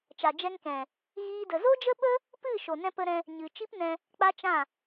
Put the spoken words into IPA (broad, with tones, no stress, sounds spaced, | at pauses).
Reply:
t͡ʃ a˨ d͡ʒ ɛ˧ ŋ k ɛ̃˨ | ɣ iː˦ d ə˧ z o˦ d͡ʒ ə˦ ɓ ə˦ | p ɨ˦˨ ʃ o˨ n ɛ̃˧ p ə˧ ɾ ɛ̃˧ | ɲ ɨ˨ t͡ʃ i˦ p n ɛ̃˧ | k͡p a˦ t͡ʃ ã˦˨